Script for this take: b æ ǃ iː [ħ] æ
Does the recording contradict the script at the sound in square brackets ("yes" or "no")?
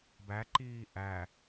yes